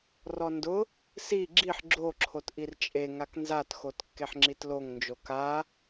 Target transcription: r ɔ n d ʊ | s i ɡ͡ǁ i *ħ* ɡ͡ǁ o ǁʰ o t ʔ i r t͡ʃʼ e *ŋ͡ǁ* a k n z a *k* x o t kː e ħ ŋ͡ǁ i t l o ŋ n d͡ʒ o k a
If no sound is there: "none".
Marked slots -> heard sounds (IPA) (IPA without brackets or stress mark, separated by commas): ħ, ŋ, t